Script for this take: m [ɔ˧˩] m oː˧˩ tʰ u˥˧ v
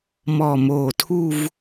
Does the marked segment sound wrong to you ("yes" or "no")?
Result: no